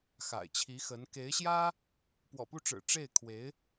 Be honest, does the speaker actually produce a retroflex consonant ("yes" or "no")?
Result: yes